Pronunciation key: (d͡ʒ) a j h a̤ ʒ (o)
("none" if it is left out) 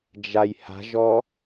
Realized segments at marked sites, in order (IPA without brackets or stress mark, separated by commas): d͡ʒ, ɔ